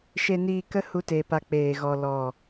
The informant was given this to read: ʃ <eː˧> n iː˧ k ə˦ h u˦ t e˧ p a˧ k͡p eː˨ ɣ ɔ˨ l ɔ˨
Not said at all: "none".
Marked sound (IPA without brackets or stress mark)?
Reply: e˧